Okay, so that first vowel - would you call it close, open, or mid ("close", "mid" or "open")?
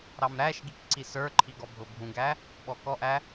open